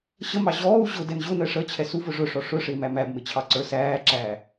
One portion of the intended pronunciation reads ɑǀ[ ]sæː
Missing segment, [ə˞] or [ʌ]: ə˞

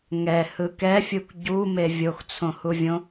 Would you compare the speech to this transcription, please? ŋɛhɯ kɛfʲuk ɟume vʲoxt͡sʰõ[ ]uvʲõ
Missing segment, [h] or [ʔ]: h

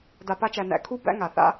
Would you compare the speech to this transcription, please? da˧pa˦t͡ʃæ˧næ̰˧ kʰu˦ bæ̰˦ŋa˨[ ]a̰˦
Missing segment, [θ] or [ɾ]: θ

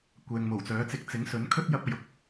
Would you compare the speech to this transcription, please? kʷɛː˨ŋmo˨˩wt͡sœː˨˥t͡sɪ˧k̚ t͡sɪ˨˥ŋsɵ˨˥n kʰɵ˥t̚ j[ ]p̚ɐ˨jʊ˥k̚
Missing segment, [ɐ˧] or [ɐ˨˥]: ɐ˧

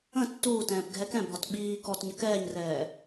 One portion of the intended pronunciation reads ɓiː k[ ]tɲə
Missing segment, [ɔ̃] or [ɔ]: ɔ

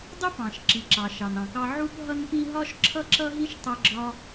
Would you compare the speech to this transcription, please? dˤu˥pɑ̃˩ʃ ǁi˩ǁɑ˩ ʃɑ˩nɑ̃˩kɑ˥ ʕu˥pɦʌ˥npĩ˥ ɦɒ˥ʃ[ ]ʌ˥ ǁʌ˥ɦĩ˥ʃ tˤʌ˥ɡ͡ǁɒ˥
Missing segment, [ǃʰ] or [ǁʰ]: ǁʰ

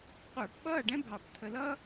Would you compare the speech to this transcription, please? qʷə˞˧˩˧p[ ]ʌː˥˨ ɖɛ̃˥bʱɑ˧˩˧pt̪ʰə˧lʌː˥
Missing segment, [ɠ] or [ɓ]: ɓ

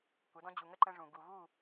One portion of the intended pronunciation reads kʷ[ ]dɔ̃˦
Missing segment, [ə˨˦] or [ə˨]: ə˨˦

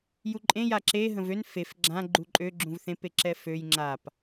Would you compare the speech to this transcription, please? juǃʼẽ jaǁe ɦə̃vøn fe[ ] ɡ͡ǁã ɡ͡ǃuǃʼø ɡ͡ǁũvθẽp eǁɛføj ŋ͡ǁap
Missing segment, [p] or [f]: f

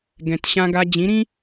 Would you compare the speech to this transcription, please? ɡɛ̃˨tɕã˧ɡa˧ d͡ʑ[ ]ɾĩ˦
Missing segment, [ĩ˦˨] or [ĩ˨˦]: ĩ˨˦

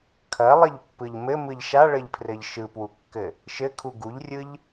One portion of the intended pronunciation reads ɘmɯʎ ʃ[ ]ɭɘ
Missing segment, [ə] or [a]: a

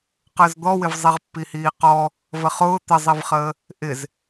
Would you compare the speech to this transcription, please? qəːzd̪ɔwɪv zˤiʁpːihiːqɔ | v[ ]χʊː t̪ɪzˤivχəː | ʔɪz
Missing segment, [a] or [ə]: ə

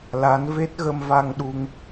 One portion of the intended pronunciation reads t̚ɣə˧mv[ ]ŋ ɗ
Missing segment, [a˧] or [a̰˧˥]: a˧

